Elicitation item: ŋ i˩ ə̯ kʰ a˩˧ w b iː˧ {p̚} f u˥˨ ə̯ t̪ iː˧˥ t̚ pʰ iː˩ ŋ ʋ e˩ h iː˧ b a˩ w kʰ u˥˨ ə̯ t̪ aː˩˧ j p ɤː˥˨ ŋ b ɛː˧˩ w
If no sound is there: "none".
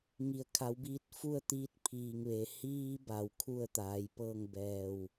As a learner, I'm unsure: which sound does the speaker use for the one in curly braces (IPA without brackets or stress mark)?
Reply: t̚